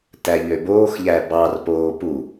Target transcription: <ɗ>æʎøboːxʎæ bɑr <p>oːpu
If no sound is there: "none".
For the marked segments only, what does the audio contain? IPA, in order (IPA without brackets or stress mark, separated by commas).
t, p